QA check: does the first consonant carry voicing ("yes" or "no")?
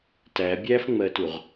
no